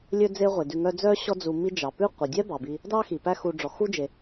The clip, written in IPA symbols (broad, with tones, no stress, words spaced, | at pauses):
lʲɵ˦ d͡ze˦ʁʷe˩dʉ˨ŋœ˦ d͡zœ˥ɕɔ˦ d͡zu˨mi˦d͡ʒɑ˩ pʉ˥ qʷɛ˩dʲɛ˥bɑ˩bi˨ | dɑ˥ xi˩pæ˦ xu˨ɖ͡ʐɔ˩xu˥d͡ʒe˩